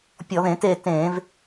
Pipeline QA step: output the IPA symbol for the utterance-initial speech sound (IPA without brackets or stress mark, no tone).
pʲ